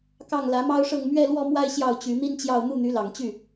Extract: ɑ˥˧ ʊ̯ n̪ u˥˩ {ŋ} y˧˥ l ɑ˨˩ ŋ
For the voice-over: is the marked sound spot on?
no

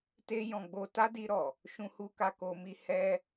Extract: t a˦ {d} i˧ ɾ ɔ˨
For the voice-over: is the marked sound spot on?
yes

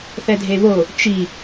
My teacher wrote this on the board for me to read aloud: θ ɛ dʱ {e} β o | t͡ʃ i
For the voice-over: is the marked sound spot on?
yes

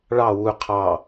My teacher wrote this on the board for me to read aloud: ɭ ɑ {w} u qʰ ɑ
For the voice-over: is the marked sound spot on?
yes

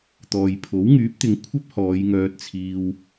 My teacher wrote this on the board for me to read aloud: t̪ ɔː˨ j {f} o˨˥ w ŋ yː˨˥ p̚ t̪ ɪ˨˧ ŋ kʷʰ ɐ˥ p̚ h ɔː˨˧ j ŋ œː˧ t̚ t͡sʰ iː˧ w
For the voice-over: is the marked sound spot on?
no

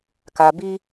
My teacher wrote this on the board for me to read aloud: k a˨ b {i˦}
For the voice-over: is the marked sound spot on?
yes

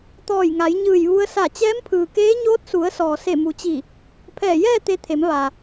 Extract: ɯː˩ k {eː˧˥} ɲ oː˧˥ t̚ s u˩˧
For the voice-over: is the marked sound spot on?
yes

